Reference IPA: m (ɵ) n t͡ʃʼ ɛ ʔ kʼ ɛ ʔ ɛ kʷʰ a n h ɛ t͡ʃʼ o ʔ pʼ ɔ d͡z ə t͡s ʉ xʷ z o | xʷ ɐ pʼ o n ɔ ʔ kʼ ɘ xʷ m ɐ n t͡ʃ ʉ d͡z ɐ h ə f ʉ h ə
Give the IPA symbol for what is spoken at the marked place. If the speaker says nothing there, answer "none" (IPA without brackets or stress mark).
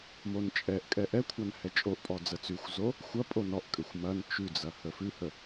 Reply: o